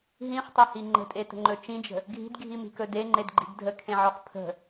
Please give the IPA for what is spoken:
ɦ ĩ χ tˤ ɵ h i ŋ͡ǃ ə̤ tʼ e t ə̤ ŋ͡ǃ ɵ t͡ʃ ĩ d͡ʒ ə̤ | ɡʱ i̤ d ɡʱ i m i̤ k ɵ d e ŋ͡ǃ e d ɡ͡ǃ i̤ ɡ dʱ ə kʰ ẽ ʕ ɔ χ pʰ ə̤

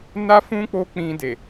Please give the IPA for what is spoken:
n a˦ f ũ˦ k͡p o˦ k͡p ĩ˧ d e˨

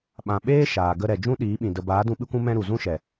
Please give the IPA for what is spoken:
ɓ ã˧ ɓ eː˦ ʃ aː˨ ɡ ə˧ ɾ ɛ˨ d͡ʒ ũ˦ ɗ iː˨˦ ɓ ĩ˨ d ə˨ b aː˨˦ d ũ˧ ɓ ɨ˦ kʷ ũ˦ m ɛ̃˧ ɾ u˨ z ũ˦ ʃ ɛ˨

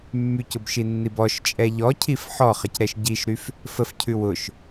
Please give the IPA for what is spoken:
mː y c ʊ b ʃ i nː i b ɔ ʃ t͡ʃʼ ɛ ʎ ɔ cʰ i f ħ ɔ χ ə c ɾ ɛ ʃ ɟ i ʃ ɾ y f | f ə f cʰ ʉ w ʊ ʃ

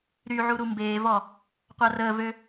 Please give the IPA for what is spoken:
ɾ y ʕ u ɾ u m b eː v ɔ | qʷ a r əː v ø

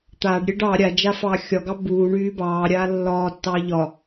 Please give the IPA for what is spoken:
t̪ aː ɖ ɾʲ e ɖ ɑ ɾʲ a d͡ʒ a f ɑː xʲ ɒ ɡ ɑ b uː ɳ yː b ɑː ɾʲ aː lː ɒː tː ɑ ʎ ɒ

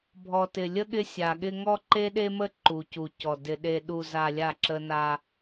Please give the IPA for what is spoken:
bʱ ɔ˨ t ɪ˨ lʲ ə˦ ɠ ɪ˦ sʲ a˨ ɠ ɪ˦ ŋ ɔ˦ ǃ e˦ ɗ e˦ m ə˦ ǃ u˨ c u˨ c ɔ˨ d ɪ˨ ɗ e˨ ɗ u˨ z a˨ lʲ a˦˨ ǁ ə˦ n a˦

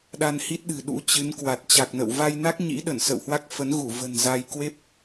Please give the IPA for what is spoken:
ɗ a˧ n h i˦˥ t̚ ɗ ɨ̤˨˩ ɗ ṵ˧˥ t͡ɕ ɨ˨˦ n k w a˨˩ t̚ t͡ɕ a˨˩ k̚ n ə̰˧˨ w v a˧ j n a˦˥ k̚ ɲ ḭ˧˥ ɗ ə˧˩ n s ə̰˧˨ w h w a˦˥ k̚ f ə˨˦ n ɣ u˧˩ v ə̤˨˩ n z a˧ j k w e˦˥ p̚

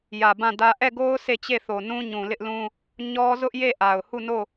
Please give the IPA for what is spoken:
j ä˨ b ã˦˨ d ä˦ ʔ ɛ˦˨ ɡ o˦ ʊ̯ sʰ e˦˨ t͡ɕ e˦˨ θ o˨ n ũ˦ ɲ ũ˨ l ɪ˦ ʔ l ũ˦ | ɲ ɔ˦ z ʊ˦ ʔ j e˦˨ ʔ a˨ ʊ̯ h u˦˨ n o˦˨

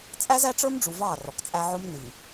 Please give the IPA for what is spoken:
t͡sʼ æ˦ z æ˦ ʈ͡ʂ ə˞˦ m ɖ͡ʐ u˨ v ɑː˦˨ r ɔ˨ k t͡sʼ æ˦ ʕ ʊ˦ m n i˨

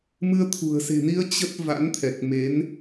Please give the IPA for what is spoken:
m ɨ˧ ə̯ t̪ʰ ṳ˨˩ ə̯ s e̤˨˩ n i˧ ə̯ t͡ɕ ə˦˥ t̚ v a̰˧˥ n t̪ʰ ɛ˨˩ k̚ m e˨˦ n

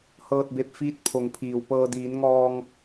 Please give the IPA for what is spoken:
h ɤː˧ t̚ b e˧ p̚ f iː˧˥ t̚ pʰ o˩˧ ŋ pʰ iː˩ w p ɤː˧ d iː˩˧ n ŋ ɔː˧ ŋ

